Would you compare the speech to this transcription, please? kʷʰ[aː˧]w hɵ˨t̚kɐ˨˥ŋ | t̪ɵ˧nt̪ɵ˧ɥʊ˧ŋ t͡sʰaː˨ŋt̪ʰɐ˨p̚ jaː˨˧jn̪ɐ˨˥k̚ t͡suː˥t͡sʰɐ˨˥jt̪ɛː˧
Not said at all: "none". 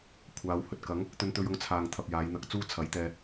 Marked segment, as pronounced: aː˨˧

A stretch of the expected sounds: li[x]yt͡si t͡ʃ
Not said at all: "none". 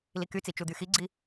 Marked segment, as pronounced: k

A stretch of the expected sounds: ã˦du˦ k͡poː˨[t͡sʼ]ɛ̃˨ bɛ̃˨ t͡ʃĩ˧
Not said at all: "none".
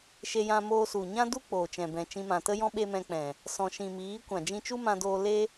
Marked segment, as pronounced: t͡ʃ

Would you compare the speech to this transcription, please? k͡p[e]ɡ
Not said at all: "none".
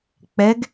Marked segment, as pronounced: ɛ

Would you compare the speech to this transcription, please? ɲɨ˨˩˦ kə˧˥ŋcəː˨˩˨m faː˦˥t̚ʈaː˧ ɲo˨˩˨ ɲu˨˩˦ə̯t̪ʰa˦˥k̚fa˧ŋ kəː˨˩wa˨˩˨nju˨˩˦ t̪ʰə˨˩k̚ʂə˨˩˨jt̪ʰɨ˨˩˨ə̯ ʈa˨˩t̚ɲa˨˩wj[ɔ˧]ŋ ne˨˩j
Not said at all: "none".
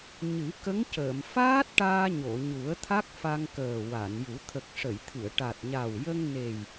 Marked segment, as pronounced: ə˧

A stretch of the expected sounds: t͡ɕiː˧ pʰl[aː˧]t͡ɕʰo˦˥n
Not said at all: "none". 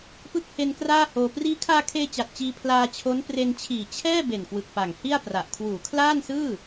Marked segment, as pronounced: aː˧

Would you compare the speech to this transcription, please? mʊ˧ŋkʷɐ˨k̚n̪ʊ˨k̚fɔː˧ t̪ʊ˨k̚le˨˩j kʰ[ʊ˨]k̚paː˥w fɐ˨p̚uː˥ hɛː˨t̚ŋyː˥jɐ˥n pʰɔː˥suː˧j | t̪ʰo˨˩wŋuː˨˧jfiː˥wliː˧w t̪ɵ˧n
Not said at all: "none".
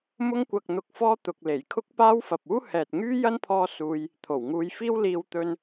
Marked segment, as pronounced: ʊ˥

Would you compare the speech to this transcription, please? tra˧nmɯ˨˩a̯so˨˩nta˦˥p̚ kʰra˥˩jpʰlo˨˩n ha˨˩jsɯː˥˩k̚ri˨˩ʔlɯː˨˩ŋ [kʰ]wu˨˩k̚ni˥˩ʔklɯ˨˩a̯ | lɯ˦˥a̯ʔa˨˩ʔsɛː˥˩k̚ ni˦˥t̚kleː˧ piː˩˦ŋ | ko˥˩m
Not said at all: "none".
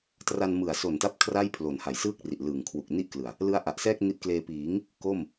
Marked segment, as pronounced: kʰ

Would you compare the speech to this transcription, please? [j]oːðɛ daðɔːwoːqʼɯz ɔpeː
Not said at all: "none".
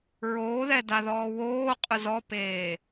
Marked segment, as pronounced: ɹ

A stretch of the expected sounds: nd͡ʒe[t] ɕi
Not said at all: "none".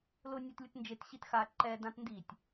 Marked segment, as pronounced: t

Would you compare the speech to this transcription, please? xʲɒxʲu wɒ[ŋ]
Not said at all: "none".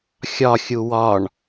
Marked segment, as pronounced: ɳ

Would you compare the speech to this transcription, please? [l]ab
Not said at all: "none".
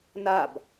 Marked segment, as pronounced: n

